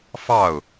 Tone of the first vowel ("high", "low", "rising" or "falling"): falling